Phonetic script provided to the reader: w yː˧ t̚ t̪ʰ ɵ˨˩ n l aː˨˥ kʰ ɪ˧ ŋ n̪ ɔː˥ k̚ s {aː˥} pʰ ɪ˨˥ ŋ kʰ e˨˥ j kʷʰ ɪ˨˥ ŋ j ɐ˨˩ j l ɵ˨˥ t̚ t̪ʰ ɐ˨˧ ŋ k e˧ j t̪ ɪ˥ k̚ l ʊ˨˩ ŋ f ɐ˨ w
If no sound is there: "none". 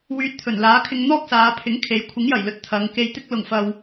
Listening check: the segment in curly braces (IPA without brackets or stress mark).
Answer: aː˨˧